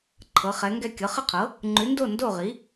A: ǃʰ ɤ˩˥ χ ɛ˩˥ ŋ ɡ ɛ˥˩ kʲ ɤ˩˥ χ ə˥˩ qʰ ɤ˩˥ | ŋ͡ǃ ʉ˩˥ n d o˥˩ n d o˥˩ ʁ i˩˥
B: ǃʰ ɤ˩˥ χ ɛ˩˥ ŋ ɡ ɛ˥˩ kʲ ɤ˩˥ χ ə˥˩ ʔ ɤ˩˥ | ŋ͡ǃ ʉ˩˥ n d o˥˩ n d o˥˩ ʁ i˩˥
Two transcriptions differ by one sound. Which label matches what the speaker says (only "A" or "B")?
A